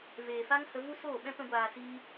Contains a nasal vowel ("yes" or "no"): yes